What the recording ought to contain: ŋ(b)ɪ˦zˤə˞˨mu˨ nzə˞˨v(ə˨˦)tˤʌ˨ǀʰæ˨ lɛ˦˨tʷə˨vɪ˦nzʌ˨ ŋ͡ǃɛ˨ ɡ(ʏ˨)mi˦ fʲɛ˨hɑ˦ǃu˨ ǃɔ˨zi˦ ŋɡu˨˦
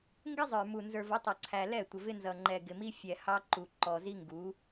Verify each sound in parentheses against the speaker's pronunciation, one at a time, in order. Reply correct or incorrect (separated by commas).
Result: incorrect, correct, incorrect